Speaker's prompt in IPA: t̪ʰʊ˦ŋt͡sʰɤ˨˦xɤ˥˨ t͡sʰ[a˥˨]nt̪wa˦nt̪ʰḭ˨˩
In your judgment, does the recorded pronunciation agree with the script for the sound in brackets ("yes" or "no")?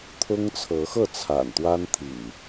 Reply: no